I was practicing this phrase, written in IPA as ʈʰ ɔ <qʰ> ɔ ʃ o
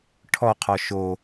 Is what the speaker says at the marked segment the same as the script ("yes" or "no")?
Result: yes